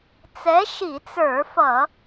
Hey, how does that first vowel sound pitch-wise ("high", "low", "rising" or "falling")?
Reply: rising